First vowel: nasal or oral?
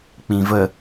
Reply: nasal